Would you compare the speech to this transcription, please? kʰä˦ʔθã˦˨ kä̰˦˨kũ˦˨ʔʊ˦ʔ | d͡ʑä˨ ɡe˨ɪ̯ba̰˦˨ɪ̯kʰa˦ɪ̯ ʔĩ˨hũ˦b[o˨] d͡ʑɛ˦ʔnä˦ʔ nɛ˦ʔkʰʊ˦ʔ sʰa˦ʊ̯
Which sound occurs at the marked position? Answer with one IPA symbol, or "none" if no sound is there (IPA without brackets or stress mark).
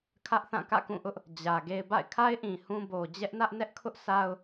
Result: o˨